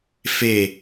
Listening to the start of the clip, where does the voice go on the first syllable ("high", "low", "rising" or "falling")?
falling